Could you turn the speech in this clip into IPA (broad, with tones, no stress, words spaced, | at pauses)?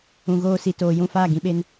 ũ˨ɣoː˧si˨ toː˨jũ˦˨faː˦˨ ɡĩ˧ɓe˧n